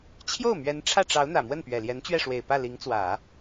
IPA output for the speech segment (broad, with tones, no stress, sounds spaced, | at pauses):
t͡ɕʰ j o˥˩ ʊ̯ m ɥ ɛ˧˥ n ʈ͡ʂʰ ä˥˩ ʈ͡ʂ ɑ˧˥ ʊ̯ n̪ ä˨˩ m w ə˥˩ n p ɥ ɛ˨˩ l j ɛ˧˥ n t͡ɕ ɥ ɛ˥˩ ʂ w e˨˩ ɪ̯ p ä˥˩ l i˧˥ ŋ t͡s w ä˨˩˦